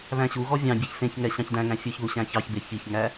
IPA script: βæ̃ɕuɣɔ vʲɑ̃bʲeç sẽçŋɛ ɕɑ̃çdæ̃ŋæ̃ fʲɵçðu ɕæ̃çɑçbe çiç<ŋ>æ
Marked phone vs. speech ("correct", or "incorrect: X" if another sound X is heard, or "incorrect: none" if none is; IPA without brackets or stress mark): correct